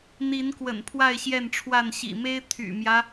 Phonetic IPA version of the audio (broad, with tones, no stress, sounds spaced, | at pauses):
n̪ i˨˦ n k w ə̰˨˩ n pʰ w a˥˨ ɪ̯ ɕ j ɛ˥˨ n ʈ͡ʂʰ w a˥˨ n ɕ ḭ˨˩ m e˦ ɪ̯ t̪ʰ y̰˨˩ m j ä˦